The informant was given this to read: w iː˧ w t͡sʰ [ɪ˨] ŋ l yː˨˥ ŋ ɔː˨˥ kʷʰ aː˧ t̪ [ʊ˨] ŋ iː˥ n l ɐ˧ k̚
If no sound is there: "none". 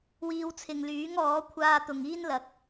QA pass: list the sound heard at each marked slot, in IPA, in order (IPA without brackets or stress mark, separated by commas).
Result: ɪ˨, ʊ˨